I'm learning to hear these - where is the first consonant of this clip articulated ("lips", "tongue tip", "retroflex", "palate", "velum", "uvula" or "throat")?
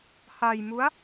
throat